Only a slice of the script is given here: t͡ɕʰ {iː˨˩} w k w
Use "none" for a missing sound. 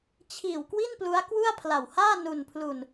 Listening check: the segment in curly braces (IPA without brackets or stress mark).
iː˨˩